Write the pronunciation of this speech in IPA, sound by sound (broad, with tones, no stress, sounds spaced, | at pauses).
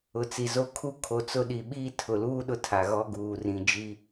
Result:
ʊ˨ t͡s i˨ z o˦ kʰ u˦ kʰ o˨ t͡s ʊ˦ ɗ i˨ ɓ iː˦ tʰ ʊ˨ l uː˦ ɗ ʊ˦ tʰ a˨ ɣ ɔ˦ ɡ uː˨ r ĩ˨ d͡ʒ i˦